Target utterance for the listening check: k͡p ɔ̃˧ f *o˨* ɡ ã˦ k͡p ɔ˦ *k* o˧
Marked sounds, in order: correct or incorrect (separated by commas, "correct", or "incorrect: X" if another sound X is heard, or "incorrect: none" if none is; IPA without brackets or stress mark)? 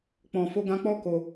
incorrect: o˦, correct